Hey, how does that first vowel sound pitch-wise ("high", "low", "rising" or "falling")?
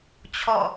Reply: falling